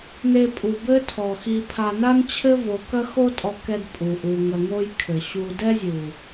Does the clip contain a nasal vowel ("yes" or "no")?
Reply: no